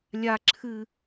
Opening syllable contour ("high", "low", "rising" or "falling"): high